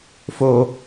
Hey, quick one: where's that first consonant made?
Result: lips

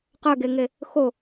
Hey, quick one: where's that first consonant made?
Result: uvula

